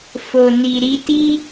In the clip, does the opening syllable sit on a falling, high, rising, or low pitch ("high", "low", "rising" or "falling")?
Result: low